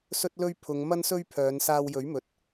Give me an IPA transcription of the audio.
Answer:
s ɵ˥ t̚ l ɵ˥ ɥ pʰ ʊ˨˧ ŋ m ɐ˥ n s ɵ˥ ɥ pʰ œː˨˧ n s aː˧ w j ɵ˨˥ ɥ m ɵ˨ t̚

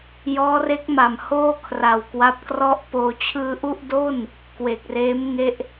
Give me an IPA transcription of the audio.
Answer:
j ɔː˦˥ r e˦˥ k̚ m a˨˩ m h oː˥˩ kʰ r a˨˩ w k w a˦˥ p̚ k r ɔ˥˩ ʔ p oː˧ t͡ɕʰ ɯː˧ ʔ u˥˩ ʔ d o˥˩ n | k w e˨˩ k̚ r eː˦˥ m ŋ e˦˥ ʔ

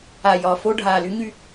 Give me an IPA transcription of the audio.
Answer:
a˨˩ j ɒ˨˩ f o˧ ɖʱ aː˨˩ l y˨˥ ɲ y˧

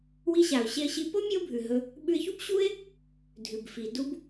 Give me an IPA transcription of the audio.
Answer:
w i˧ ɕ a˩ ʊ̯ ɕ e˧ ə̯ ɕ i˧ p o˥ mʲ o˥ bʱ ʉ˩ ɦ ɵ˧ | ɓ ʉ˧ ɪ̯ ç u˥ b ɕ u˥ ɪ̯ | dʱ ʉ˩ b f i˩ d u˥ b

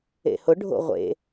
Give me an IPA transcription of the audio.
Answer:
ḛ h ʊ ɖʱ o̰ ʁʷ ḛ

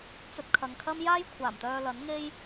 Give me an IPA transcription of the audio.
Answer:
t͡s ɵ˧ t̚ kʰ ɐ˨ ŋ kʰ ɐ˥ m j aː˥ j kʷʰ aː˨˩ m t̪ œː˧ l ɐ˨˥ n ŋ e˥ j

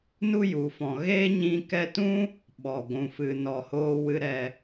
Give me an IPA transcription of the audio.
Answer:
n u˦ j u˨ f ɔ̃˨ ɣ e˦ ɲ ĩ˧ k ɛ˦ t ũ˦ | ɓ ɔ˨ ɡʷ ũ˨ f ɨ˨ n ɔ˨ h oː˧ w ɨ˧ ɾ ɛ˧

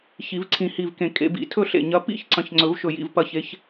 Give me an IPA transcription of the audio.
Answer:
ç i˨˩˦ v ǀʰ ĩ˧˩ h i˧˩ v k ẽ˧˩ kʼ ḛ˨˩˦ b ḭ˨˩˦ tʰ ɵ˥˨ ɬ ḛ˧˩ ɲ ɐ˨˦ p ḭ˥˨ ç ǀ ɐ̃˨˦ ç ŋ͡ǀ ɵ˨˩˦ v ʃ ɵ˧˩ j ḭ˧˩ v p ɐ˧˩ ç e˨˦ ç

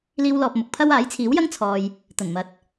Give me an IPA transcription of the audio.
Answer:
l iː˥ w l ɔː˧ p̚ m ʊ˨˥ k̚ pʰ ɐ˥ w aː˨˥ j t͡sʰ iː˨˥ w j ɐ˥ ŋ t͡sʰ ɔː˧ j | t̪ ɐ˨˩ n m ɐ˨˥ t̚

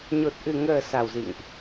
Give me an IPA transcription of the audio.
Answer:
ɲ o˨˩ t̚ ʔ ɨ˨˩ ŋ əː˨˩ s a˨˩ w z ḭ˧˨ ŋ ʔ

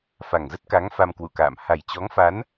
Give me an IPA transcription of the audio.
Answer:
f a˨˩ ŋ z ə˦˥ t̚ k a˨˦ ŋ f a˧ m k w ṵ˧˨ k a̰ː˧˨ m h a˨˩ j t͡ɕ ɔ˨˦ ŋ f a˨˦ n

